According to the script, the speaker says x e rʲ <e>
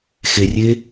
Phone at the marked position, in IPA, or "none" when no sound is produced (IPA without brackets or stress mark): e